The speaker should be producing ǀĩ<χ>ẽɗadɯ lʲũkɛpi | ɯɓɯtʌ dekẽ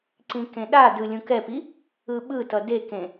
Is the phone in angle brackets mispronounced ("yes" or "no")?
yes